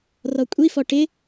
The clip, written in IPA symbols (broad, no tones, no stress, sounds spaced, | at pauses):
r ɔ kʷʼ i f ɔ ʈ ɪ